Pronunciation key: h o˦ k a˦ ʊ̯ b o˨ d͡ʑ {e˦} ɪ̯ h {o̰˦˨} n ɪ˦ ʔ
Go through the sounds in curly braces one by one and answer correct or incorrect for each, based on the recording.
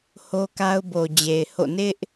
incorrect, correct

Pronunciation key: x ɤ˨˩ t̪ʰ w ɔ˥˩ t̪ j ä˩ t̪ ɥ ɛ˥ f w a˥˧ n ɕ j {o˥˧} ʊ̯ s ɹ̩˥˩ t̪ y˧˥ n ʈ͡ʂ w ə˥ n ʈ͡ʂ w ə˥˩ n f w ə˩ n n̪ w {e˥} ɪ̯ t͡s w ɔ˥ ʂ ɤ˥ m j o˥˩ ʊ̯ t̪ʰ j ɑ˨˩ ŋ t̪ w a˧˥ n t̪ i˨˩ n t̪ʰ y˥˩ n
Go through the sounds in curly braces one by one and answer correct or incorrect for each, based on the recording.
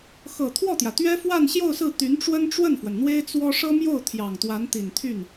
correct, correct

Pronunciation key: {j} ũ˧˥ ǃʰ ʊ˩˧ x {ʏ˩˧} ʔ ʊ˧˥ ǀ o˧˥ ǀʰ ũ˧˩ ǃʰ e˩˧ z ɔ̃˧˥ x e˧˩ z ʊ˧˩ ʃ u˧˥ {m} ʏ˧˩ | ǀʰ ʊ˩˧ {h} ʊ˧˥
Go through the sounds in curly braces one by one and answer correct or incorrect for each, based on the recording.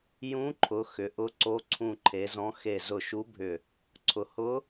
correct, correct, incorrect, correct

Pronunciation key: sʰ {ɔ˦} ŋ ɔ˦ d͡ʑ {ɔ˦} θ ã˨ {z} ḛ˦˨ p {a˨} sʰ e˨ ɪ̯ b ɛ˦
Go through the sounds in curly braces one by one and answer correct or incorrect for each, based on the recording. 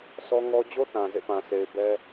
correct, incorrect, correct, incorrect

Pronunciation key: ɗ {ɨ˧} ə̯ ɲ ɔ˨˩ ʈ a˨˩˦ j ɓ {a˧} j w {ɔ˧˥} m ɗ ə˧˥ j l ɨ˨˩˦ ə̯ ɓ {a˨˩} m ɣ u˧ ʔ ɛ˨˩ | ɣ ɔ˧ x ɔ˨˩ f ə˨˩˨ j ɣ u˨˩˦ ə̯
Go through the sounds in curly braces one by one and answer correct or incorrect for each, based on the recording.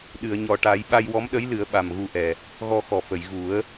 incorrect, correct, correct, correct

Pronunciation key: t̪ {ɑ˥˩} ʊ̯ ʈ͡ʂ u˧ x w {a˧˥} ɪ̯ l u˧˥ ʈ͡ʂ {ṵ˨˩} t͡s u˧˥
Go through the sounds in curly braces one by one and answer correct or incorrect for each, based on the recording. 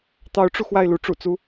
incorrect, incorrect, correct

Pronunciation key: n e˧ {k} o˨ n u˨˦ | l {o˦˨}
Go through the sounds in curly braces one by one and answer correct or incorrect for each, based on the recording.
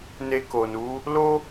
correct, incorrect

